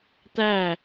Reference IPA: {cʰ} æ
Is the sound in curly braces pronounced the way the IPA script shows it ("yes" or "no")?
no